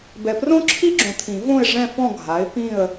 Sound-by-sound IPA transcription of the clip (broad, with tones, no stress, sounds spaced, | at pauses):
b ɛ˨ p r õ˥ ǁʰ i˥ ɡ͡ǁ õ˨ t̪ʰ ĩ˨˩˦ v õ˥˨ ɪ̯ ʐ ɛ̃˥˨ f ɔ̃˥˨ ɡʱ a˩˥ ɪ̯ p ĩ˥˨ ə̯